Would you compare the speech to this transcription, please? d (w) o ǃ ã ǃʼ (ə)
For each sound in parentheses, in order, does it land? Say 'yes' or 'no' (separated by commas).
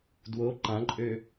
yes, no